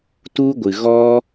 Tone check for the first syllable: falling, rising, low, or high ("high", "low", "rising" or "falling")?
high